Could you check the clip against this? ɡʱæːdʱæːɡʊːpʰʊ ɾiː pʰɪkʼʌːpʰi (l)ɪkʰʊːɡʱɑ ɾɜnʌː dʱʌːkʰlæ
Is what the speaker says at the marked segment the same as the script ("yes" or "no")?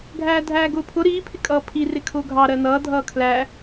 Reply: no